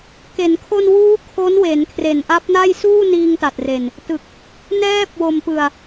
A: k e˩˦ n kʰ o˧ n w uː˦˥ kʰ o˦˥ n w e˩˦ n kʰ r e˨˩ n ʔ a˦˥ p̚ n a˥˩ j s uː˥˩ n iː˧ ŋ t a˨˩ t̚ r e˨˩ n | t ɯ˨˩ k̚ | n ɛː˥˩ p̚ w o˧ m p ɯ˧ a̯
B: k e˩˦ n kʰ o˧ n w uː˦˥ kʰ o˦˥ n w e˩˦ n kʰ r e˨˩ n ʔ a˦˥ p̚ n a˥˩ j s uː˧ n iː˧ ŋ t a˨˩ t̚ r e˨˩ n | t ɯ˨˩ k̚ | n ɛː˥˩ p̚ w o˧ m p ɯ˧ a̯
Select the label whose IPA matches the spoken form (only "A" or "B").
A